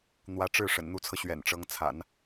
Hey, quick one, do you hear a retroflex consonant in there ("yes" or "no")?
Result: yes